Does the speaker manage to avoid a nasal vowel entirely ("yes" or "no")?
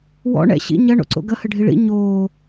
yes